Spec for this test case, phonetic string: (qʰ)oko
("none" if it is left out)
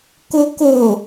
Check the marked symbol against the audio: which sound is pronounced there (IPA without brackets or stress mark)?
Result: k